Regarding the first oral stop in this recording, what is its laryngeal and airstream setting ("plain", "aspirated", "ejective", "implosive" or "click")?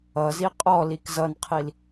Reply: ejective